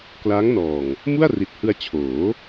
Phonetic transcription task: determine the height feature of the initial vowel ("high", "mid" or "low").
low